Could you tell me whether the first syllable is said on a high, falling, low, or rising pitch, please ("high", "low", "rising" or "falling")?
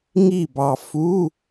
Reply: falling